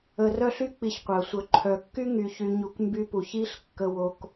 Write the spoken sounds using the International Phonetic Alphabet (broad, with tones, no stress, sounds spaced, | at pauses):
ə˨ r œ˦ ɬ y˦ k͡p i˨ ç qʷ œ˩ sʷ œ˨ ǃʰ œ˨ kː y˥ ŋ y˨ ç y˨ ɲ u˨ k m b y˦ p u˨ ç i˥ ɬ kː ə˦ w o˦ k